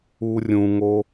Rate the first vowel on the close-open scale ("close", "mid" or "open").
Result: close